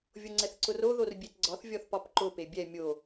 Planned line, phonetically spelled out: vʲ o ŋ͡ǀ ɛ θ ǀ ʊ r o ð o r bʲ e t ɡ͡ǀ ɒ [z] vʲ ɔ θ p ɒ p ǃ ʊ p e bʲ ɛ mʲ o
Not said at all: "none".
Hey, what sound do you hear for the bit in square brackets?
θ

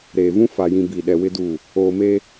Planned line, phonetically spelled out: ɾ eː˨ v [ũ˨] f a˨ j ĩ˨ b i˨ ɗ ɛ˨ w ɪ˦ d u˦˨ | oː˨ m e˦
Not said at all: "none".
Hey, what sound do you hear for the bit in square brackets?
ũ˦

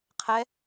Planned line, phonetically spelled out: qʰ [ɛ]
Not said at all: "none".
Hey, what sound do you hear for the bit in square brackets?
ɛ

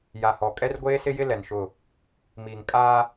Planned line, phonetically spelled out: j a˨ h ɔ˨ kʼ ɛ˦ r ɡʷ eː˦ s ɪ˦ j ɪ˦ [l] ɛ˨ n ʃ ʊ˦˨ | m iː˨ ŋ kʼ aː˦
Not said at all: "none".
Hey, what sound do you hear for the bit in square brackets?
l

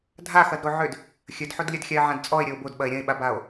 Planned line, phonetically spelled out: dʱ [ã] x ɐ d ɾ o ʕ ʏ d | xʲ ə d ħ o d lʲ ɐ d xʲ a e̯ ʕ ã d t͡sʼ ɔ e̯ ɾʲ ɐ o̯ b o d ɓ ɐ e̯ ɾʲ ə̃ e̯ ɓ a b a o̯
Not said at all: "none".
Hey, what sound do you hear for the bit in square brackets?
a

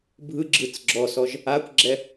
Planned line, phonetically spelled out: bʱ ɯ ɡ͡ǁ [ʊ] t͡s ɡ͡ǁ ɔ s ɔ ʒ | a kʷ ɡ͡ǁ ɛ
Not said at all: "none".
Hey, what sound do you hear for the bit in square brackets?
ɯ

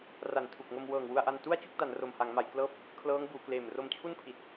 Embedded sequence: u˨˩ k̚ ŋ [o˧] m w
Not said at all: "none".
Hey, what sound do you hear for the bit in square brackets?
o˧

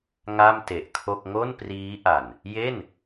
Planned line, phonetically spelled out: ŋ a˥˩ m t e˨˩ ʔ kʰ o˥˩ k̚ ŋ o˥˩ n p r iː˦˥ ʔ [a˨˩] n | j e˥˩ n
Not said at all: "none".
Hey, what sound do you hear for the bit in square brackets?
a˨˩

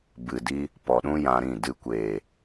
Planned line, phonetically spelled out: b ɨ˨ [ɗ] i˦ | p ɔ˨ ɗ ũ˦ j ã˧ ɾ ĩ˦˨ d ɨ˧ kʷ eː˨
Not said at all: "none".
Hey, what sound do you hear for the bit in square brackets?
d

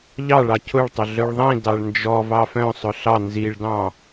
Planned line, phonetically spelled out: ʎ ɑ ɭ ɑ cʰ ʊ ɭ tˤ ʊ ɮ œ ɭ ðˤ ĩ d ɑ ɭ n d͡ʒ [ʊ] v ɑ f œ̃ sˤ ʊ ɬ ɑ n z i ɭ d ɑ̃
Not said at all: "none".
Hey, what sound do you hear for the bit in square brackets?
ɔ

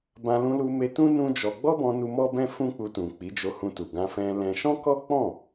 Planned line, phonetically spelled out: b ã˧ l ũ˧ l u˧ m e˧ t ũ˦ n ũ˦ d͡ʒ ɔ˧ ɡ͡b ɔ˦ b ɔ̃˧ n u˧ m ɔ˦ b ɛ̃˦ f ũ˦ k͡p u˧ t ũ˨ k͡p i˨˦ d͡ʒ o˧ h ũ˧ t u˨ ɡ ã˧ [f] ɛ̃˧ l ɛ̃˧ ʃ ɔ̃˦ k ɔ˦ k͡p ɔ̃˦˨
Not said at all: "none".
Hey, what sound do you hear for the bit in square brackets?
f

